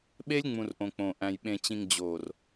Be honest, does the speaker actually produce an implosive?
yes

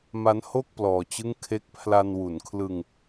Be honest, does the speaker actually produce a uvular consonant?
no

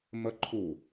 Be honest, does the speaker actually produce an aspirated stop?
yes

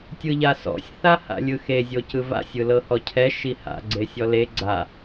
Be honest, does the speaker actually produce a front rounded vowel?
no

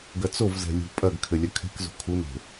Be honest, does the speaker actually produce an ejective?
yes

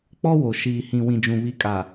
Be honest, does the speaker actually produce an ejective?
yes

